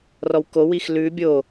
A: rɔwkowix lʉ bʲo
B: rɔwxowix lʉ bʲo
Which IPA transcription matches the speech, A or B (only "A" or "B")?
A